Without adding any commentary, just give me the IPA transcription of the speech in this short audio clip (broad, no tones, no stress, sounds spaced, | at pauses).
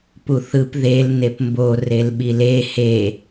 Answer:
p u θ ɯ p ð e l n e p m b o r e l ɓ i l e h e